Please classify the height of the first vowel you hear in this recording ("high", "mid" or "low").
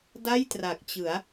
low